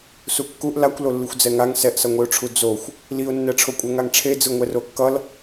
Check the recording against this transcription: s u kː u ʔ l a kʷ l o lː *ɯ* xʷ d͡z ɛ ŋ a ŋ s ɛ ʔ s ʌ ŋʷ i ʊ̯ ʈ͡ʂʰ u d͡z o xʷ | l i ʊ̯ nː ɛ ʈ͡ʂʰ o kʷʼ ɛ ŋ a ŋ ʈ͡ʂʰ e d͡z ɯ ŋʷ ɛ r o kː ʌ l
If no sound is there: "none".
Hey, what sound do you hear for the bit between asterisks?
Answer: ɯ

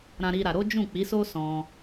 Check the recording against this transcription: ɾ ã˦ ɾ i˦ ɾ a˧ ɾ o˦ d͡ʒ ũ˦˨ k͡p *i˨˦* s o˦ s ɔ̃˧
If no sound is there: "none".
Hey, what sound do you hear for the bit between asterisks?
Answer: i˨˦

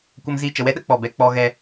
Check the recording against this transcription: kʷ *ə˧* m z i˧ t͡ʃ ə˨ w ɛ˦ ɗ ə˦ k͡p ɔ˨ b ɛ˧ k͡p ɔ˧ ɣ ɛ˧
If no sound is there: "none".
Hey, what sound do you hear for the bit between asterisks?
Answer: ə˧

